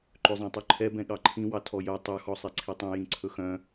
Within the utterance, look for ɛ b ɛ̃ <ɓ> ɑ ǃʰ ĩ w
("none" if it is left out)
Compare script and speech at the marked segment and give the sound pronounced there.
ɠ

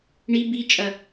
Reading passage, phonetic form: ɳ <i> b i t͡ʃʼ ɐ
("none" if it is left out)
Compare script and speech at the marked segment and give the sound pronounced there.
i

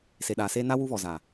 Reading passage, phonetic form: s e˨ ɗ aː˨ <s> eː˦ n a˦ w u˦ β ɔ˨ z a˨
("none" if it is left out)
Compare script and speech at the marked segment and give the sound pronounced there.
s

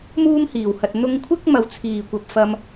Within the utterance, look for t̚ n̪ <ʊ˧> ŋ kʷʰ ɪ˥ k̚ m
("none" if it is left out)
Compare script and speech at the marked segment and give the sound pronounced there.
ʊ˧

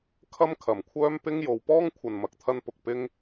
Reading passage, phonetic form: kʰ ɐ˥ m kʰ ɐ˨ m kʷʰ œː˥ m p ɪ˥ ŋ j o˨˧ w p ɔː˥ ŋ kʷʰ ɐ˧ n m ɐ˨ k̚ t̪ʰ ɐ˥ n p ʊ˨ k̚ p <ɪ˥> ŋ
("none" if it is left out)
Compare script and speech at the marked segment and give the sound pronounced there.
ɪ˥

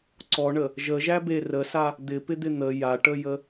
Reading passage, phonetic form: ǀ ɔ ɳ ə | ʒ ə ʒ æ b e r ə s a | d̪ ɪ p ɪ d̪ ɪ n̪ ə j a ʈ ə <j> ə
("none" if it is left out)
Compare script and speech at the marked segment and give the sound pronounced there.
j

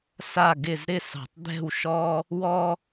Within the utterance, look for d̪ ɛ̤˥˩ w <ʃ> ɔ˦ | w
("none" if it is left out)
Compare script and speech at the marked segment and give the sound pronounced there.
ʃ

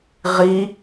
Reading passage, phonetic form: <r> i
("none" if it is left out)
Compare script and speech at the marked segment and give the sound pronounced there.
ʁ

